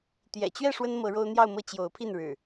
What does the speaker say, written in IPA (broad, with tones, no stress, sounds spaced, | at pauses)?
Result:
t̪ j ɛ̰˨˩ t͡ɕ ɥ ɛ˥˨ ʂ w ə˦ n m ɤ˨˦ ɻ o˦ ʊ̯ n̪ j ɑ˥˨ ʊ̯ m ɤ˥˨ t͡ɕ j o˨˦ ʊ̯ pʰ i˥˨ n ɻ ɻ̩˨˩